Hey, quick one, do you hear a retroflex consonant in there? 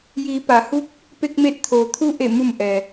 no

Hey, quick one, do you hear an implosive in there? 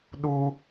yes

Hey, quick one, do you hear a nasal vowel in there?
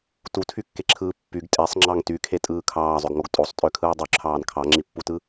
no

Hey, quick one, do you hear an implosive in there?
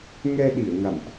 yes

